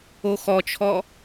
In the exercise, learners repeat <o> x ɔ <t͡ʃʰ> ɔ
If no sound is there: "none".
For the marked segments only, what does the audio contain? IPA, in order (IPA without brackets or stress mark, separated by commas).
o, t͡ʃʰ